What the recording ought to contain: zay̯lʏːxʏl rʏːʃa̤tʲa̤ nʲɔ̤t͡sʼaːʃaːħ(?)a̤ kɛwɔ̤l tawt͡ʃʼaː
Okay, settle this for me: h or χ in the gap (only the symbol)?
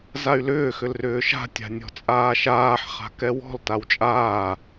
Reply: χ